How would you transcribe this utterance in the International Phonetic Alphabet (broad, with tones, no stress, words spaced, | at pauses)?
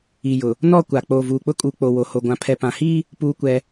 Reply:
i˨jʊ˨ | nɔ˦˨kʷa˨ k͡poː˨vuː˨k͡pʊ˦kʼuː˨ k͡po˨wo˨ho˨ ɡʷã˨pʰɛ˨pã˨hiː˦ | puː˦kʷɛ˦